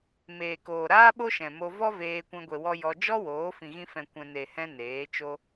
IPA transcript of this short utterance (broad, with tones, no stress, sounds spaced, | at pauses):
m eː˨ k oː˨ ɾ aː˦ ɓ o˦ ʃ ɛ̃˨ m o˧ v ɔ˦ v eː˧ kʷ ɛ̃˧ ɡʷ e˨ w ɔ˧ j ɔ˧ d͡ʒ ɔ˦ w oː˨˦ f ĩ˨ ɣ ĩ˧ f ɛ̃˨ kʷ ɛ̃˨ n e˨ h ɛ̃˧ n eː˨˦ t͡ʃ o˦